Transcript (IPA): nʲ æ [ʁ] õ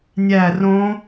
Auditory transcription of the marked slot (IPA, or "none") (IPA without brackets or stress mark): r